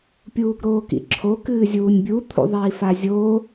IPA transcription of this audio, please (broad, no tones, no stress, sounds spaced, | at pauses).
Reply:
pʲ uː ɡ ɾ oː k ḭ ǁʰ o k ɨː zʲ uː nʲ bʲ u t̪ʰ ṵ ðˤ iː f a zʲ oː